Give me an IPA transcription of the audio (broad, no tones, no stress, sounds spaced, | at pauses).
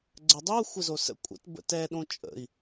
ɡ͡ǀ ə dˤ o xʷ ə z o s ə̰ kʷʼ ə̰ t b ə̰ t ɛ ɗ õ t͡ʃʼ ə̰ i̯